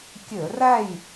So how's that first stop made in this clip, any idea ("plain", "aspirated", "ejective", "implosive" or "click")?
plain